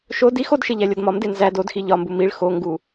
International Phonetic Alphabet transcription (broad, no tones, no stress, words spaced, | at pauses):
ʃo dix odʃe ʎælʲɒdmɒmde nzæd odxi ʎɒmbu miɭ xoŋɡu